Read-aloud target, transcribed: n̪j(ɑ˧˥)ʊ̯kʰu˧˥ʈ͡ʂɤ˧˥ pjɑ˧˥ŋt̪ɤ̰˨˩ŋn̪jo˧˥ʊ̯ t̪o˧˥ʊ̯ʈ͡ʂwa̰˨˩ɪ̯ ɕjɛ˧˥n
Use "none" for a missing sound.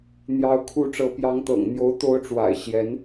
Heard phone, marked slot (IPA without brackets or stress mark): ɑ˧˥